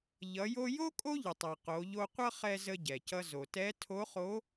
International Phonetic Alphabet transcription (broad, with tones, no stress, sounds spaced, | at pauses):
ʎ ʌ˩˧ j o˧ j o˥ kʼ o˥ ʎ ə˩ tˤ ɛ˩ q o˩˧ ʎ o˧ qʷ ʌ˥ χ ɛ˧ z ə˧ ɟ ɛ˩ c ʌ˥ z o˩ t ɛ˧˥ tʰ o˧˥ χ o˧˥